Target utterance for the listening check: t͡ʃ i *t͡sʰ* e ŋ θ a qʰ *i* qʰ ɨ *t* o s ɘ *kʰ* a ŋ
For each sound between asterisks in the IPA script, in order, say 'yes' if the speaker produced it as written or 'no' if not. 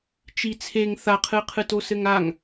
yes, no, yes, no

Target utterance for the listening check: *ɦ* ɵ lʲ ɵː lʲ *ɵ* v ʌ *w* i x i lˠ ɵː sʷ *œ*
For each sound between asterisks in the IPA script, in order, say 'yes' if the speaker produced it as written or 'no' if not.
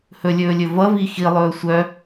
no, yes, no, yes

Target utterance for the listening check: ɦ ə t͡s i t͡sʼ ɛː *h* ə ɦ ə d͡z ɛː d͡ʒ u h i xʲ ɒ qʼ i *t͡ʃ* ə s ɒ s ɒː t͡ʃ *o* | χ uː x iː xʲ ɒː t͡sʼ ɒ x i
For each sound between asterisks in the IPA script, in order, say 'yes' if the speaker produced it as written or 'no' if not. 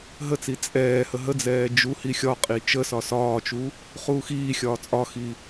yes, yes, no

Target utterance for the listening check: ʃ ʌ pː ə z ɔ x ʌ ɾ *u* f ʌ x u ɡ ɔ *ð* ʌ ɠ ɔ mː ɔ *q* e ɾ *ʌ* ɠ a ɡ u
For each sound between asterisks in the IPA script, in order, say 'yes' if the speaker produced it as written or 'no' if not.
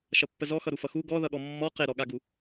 yes, yes, yes, no

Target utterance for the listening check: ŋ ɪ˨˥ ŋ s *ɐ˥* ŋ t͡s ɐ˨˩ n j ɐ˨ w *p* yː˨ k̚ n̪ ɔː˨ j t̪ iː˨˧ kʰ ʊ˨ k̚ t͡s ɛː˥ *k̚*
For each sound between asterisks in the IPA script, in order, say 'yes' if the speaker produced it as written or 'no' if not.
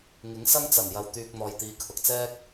yes, no, yes

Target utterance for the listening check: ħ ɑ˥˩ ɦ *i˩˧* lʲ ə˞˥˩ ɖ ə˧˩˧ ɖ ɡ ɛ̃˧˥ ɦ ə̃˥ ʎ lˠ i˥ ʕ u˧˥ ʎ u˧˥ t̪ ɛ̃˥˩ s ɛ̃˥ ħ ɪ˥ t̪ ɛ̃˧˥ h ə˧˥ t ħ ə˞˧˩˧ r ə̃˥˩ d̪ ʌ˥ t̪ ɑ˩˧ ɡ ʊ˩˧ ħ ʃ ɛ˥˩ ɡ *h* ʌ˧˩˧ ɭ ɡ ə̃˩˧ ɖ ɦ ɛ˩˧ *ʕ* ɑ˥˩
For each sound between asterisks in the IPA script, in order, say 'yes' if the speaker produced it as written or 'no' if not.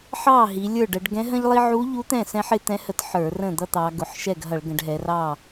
yes, no, no

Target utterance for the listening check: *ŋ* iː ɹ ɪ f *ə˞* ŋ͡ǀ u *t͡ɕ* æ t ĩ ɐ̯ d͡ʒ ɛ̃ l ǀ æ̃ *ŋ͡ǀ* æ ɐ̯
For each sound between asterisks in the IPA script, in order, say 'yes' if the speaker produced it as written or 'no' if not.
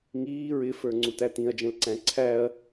yes, yes, no, no

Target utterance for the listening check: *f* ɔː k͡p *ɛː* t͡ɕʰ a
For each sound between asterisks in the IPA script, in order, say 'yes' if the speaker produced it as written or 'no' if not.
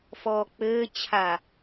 yes, no

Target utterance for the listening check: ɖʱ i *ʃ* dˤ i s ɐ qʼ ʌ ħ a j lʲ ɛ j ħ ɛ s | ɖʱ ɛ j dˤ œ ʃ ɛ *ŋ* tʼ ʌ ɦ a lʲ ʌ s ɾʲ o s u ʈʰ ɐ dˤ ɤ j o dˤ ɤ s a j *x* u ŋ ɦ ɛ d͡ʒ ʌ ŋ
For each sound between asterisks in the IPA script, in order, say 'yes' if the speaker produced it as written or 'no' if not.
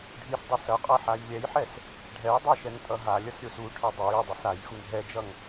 no, yes, yes

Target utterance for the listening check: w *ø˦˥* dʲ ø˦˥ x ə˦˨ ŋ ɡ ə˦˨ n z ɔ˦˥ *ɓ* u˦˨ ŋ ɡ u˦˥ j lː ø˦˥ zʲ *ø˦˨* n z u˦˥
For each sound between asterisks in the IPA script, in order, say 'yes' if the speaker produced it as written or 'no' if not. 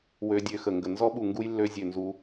yes, yes, yes

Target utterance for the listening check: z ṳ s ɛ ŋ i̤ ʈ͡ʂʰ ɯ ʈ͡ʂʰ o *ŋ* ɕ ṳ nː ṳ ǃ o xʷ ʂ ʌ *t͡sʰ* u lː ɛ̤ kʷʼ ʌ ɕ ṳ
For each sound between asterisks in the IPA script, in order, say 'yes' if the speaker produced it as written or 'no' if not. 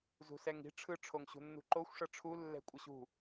yes, no

